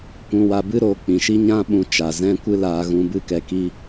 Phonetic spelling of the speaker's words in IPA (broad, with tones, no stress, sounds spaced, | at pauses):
kʷ ũ˧ w a˧ b ɨ˦ ɾ oː˧ k͡p ĩ˨ ʃ i˦ ɲ ã˦ ɓ ũ˧ t͡ʃ a˨ z ɛ̃˦ kʷ ɨ˦ l aː˧ ɣ ũ˧ b ɨ˦ k ɛ˧ k i˦